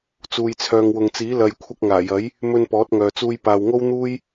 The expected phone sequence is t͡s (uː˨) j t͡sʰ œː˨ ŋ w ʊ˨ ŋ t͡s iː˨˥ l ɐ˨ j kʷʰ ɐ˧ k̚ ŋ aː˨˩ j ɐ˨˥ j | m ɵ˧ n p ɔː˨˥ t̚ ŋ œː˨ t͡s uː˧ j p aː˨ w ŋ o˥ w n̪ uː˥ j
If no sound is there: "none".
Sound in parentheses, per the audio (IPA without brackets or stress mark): uː˨